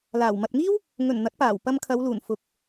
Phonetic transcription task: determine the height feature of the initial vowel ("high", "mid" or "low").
low